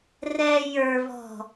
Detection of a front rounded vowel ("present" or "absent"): absent